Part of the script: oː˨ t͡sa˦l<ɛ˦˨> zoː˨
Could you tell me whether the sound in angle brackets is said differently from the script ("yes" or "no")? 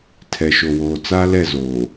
no